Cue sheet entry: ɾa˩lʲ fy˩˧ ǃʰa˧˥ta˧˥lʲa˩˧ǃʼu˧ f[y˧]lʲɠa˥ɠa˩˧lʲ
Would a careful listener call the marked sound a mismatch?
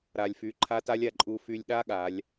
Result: no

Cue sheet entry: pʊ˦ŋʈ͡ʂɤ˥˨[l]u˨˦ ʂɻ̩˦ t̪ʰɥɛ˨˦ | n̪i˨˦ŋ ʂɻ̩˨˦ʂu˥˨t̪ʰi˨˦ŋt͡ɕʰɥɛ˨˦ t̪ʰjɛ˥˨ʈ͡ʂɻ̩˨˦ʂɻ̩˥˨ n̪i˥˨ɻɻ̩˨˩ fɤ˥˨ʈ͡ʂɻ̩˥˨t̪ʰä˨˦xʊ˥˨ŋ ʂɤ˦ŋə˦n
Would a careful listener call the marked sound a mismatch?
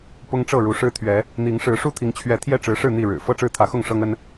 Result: yes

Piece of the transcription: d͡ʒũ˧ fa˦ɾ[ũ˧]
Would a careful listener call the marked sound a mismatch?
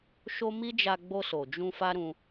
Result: no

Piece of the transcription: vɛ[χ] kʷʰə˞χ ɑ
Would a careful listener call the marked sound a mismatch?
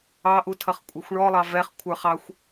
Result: no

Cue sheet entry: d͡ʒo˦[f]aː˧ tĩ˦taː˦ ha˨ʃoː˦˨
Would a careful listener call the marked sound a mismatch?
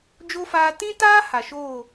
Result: no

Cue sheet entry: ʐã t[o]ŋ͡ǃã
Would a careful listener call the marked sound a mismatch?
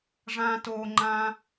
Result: no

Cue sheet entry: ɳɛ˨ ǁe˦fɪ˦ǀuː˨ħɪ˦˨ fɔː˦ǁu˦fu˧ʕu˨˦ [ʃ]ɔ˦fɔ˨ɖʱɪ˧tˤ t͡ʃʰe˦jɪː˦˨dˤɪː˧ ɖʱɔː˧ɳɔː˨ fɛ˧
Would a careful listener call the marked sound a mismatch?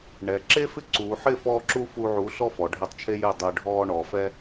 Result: yes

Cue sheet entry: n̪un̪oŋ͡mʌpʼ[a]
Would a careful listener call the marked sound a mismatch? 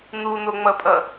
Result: yes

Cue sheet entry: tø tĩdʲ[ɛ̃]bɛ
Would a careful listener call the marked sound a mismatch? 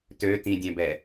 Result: no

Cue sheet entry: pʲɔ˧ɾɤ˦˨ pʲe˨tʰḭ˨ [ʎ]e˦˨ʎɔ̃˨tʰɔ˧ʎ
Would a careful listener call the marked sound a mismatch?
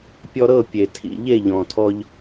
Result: no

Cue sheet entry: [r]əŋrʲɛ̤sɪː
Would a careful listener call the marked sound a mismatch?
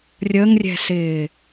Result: yes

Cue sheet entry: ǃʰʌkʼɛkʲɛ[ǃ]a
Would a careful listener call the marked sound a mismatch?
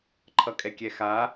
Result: yes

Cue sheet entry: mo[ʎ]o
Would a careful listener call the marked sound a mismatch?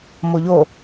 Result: no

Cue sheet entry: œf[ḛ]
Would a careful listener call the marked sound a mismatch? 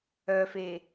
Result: yes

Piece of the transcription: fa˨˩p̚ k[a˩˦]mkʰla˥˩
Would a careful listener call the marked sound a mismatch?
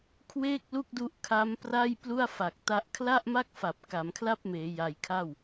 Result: no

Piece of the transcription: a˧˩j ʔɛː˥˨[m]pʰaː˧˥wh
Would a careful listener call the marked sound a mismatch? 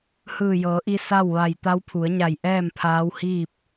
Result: no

